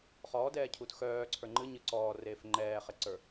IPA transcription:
χ ɔː d ɛː cʰ u t x œː ǀʰ ə˞ ŋ͡ǃ ɨ ɲ ɨ ǀ ɔː r eː f ŋ͡ǃ ɛː χ e ǀ ə˞

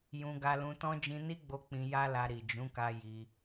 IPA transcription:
j ũ˧ ɡ a˧ l ũ˧ t ɔ̃˦ d͡ʒ ĩ˧ n i˦ ɡ͡b o˧ k͡p ĩ˧ j a˦ l a˧ ɾ i˨ d͡ʒ ũ˨˦ k a˧ j i˧

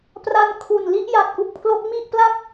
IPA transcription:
p r a˧ n kʰ u˨˩ n l i˥˩ ʔ j a˨˩ t̚ ʔ u˥˩ k̚ pʰ l o˦˥ k̚ m i˥˩ ʔ p l a˦˥ k̚

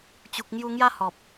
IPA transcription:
t͡ɕ u˨ k̚ ŋ j u˧ ŋ j a˦ h ɔ˨ p̚

